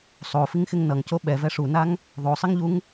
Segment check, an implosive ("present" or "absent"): present